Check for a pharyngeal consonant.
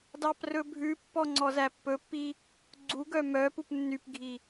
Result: absent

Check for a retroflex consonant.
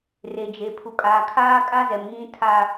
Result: absent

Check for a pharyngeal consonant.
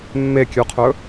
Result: absent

